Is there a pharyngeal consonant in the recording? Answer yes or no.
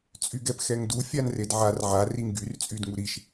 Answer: yes